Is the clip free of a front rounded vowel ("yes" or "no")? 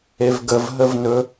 yes